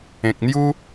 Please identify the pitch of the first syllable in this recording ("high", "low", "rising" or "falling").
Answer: low